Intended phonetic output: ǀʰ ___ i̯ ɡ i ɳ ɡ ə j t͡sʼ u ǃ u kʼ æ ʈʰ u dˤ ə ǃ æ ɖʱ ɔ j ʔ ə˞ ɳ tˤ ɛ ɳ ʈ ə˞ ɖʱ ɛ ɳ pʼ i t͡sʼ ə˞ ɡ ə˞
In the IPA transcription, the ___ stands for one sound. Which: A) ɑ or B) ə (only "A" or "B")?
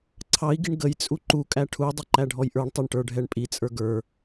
A